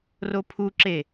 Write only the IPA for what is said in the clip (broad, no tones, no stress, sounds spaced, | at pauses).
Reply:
r o pʰ u ǁ e